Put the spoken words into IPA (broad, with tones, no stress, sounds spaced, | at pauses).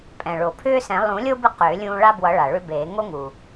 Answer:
pʼ ɛ̃˩ ɭ o˩ pʰ ʏː˦ s ɛ̃˨˩˦ lˠ ũ˨˩˦ lʲ o˦ b ɨ˦ q ʏː˨˩˦ lʲ ũː˦ ɭ a˦ b w ʌ˨˩˦ ɭ a˩ ɭ ʏ˦ b eː˨˩˦ ŋ o˦ ŋ u˩